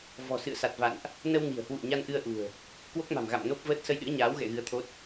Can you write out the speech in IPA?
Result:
v ɔ̤˨˩ s ɨ̰˧˨ ə̯ s a˨˩ t̚ v a̰˧˨ n ʔ | n ə˧ w n i̤˨˩ ə̯ h w ṵ˧˨ ə̯ ɲ a˧ n ʔ ɨ˧ ə̯ ʔ ṳ˨˩ ə̯ | k w o˦˥ k̚ m a̤˨˩ m ɣ a̰˧˨ m n o˦˥ p̚ v əː˦˥ t̚ s ə˧ j ɗ ɨ̰˧˥ ə̯ ɲ aː˨˦ w ɣ ɛ̰˧˨ ɣ ɨ˨˦ ə̯ t̪ʰ o˦˥ t̚

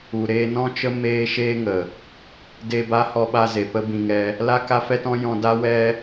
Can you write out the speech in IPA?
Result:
u˨ ɾ eː˧ n ɔ̃˦ t͡ʃ ə˦ m eː˦ ʃ eː˦ ŋ ə˨ | d eː˧ b a˦ h ɔ˧ ɓ a˧ z e˨ p ə˦ b ĩ˧ ŋ ɛ˧ | l a˦ k a˦ f ɛ˦ t ɔ̃˦ j ɔ̃˧ d a˦ w ɛ˧

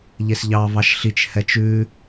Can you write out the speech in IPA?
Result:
ʎ e s ʎ ɑ v ɑ ʃ ɬ i t͡ʃ h ɛ t͡ʃ ʉ

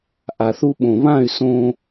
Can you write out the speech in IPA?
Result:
ʔ a˨ θ u˧ ɓ õ˨ β ã˦˨ y̯ s õ˧

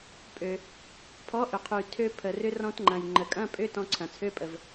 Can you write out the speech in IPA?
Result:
pʼ ø˩ | pʰ ɔ˨˥ ʔ ʏ˩ qʰ y˩ tʰ ø˧ pʰ ə˩ r ʏ˧ r ɔ̃˧ t ŋ͡ǃ ɐ̃˩ j ŋ͡ǃ ə˩ kʼ ɐ̃˧˥˧ pʼ ʏ˧˥˧ t ɔ̃˧ ǀʰ ɐ̃˩ t͡sʰ ø˧˥˧ pʼ ə˩ v

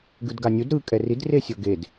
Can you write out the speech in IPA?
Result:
ɡ ɯ d ɡ a nʲ u d ɾ ɯ kʼ ɛ r i d r e sʲ ɤ ɡ e d

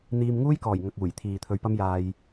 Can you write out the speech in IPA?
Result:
n̪ iː˧ m ŋ uː˥ j k ɔː˨˩ j ŋ ɐ˨ k̚ uː˨˩ j t̪ʰ iː˨ t̪ʰ ɵ˧ ɥ p ɐ˥ m j aː˧ j

